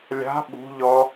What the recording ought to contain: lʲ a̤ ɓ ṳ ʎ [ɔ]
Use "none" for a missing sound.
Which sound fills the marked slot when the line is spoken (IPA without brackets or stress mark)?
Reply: ɔ